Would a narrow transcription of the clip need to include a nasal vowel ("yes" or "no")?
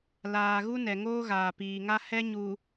no